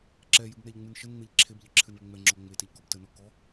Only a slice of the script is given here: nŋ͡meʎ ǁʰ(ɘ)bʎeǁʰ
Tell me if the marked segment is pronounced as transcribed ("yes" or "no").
no